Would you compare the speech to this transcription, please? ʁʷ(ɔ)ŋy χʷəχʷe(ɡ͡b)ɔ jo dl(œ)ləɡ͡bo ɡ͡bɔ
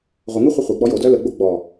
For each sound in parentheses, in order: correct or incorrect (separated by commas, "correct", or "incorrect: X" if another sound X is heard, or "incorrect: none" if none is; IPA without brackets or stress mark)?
incorrect: ə, correct, correct